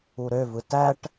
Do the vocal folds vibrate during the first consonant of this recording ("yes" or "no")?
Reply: yes